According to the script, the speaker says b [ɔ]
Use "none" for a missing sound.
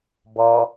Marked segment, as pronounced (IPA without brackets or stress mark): ɔ